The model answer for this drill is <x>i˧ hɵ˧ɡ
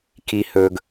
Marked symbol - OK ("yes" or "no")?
no